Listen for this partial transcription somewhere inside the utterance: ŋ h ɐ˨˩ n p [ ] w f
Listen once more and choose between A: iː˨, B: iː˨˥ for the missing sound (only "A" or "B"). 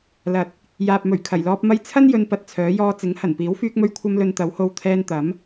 B